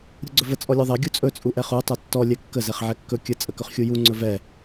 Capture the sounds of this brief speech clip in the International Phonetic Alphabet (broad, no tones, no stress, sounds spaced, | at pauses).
ɾʲ u ɡ͡ǀ ɵ v ə t͡sʼ ɔ lʲ ɔ ðˤ ɛ ɡʲ u t͡sʼ ɵ t͡sʼ u ʔ ɛ χ u tˤ ɛ tː ɔ lʲ ɛ kː ə z ɛ χ ʕ ɛ kː ɵ kʲ ə t͡sʼ ə k ɵ χ xʲ u j u ŋ͡ǀ ɵ v ɛ